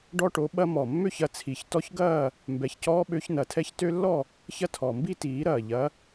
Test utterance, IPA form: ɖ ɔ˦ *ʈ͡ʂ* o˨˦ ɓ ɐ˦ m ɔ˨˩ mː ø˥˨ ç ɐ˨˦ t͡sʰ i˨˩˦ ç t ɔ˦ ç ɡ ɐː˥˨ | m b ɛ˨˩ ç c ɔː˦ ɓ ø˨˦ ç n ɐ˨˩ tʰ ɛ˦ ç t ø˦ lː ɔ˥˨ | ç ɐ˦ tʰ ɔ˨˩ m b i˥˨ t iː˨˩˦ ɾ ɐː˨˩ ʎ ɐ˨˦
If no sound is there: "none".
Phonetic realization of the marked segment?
ʈ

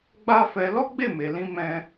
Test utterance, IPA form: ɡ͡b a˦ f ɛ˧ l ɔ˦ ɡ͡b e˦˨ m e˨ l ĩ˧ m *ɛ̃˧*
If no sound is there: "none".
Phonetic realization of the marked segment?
ɛ̃˧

